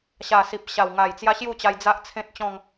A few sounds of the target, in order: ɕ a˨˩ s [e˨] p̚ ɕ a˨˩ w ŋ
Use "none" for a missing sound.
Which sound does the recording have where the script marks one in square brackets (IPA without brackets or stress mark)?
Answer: i˨